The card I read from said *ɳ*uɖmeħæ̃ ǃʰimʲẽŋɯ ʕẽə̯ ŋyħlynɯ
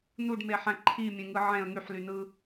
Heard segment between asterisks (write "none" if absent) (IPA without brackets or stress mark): n